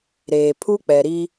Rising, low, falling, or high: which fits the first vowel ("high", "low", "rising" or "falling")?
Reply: low